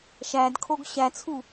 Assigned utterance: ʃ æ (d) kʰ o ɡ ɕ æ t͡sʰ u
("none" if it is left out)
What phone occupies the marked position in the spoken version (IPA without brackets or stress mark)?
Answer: d